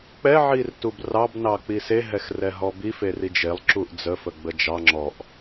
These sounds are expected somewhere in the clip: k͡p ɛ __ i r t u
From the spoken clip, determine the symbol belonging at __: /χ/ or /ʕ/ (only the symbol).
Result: ʕ